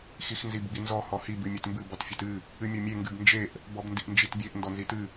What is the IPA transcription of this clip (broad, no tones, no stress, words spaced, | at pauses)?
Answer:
xixnzibɡ͡binzɔ hɔhi bɨmʲetmbɨ bɔtfʲetɨ | ɨmʲɔmʲe ŋɡɨbnd͡ʒeʔ | bɔbndiʔnd͡ʒitbʲeʔ ndɔnzitɨ